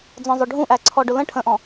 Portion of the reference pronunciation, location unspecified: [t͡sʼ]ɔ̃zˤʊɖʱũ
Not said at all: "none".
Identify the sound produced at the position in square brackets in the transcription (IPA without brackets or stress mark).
d͡z